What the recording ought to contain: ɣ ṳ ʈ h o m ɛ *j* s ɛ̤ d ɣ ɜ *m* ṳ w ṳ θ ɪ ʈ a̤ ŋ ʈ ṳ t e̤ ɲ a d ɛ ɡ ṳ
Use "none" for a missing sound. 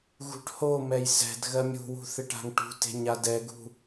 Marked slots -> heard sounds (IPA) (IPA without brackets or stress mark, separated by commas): j, mʲ